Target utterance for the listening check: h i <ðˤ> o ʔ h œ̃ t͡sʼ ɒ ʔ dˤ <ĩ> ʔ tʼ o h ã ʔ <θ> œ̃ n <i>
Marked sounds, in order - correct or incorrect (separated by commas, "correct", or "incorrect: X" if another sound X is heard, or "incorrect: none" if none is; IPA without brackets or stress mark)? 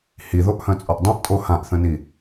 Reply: incorrect: ð, correct, correct, correct